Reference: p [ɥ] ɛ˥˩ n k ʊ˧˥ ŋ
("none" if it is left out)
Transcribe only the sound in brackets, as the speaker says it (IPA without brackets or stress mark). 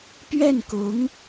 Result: ɥ